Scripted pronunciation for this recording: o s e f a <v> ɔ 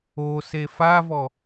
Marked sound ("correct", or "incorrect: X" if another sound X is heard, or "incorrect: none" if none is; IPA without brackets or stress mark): correct